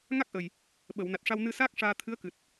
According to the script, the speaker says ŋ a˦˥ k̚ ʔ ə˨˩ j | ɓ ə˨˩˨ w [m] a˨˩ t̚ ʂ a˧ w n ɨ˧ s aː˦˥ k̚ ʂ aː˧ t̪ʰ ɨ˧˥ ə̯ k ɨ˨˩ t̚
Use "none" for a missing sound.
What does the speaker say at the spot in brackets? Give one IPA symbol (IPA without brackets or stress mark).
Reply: n